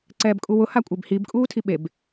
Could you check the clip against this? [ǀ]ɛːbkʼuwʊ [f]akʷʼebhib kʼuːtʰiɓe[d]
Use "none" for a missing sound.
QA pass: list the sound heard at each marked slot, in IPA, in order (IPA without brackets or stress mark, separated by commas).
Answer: ǀ, h, b